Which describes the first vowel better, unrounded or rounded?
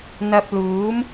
unrounded